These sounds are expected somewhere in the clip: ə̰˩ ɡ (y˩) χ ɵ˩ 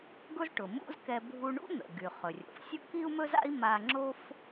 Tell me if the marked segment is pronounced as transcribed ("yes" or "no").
yes